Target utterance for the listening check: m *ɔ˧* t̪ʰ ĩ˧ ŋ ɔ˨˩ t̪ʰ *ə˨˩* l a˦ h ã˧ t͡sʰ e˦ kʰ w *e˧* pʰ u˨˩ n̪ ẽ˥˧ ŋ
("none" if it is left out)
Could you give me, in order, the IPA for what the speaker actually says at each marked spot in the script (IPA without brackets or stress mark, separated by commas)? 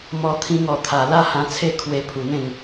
ɔ˧, a˨˩, e˧